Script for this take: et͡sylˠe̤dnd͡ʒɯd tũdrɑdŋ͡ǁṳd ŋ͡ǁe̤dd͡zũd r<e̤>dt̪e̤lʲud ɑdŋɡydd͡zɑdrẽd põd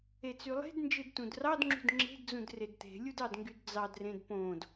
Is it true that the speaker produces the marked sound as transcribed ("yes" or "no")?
no